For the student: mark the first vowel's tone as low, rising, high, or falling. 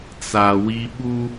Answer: low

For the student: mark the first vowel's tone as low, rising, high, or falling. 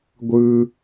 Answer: high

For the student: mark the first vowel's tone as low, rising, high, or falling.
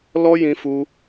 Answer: high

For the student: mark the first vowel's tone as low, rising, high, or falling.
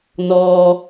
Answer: low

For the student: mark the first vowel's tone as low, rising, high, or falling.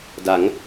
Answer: rising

